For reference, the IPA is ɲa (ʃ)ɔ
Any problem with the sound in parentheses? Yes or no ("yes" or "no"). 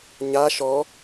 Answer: no